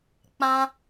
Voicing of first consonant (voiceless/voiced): voiceless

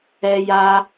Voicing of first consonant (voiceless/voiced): voiced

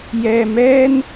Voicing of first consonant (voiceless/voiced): voiced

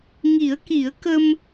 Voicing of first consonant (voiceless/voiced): voiced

